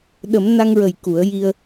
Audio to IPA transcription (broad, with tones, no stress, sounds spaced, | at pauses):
ɗ ə˨˩˦ m n a˧ ŋ ɹ ə˨˩ j k u˨˩˦ ə̯ j i˧ ə̯